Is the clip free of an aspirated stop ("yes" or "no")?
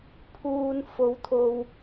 no